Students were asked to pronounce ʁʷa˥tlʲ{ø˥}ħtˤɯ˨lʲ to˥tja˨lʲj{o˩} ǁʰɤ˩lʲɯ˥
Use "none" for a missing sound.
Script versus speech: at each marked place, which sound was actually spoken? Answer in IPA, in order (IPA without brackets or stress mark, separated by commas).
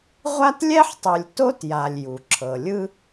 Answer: ɛ˥, u˩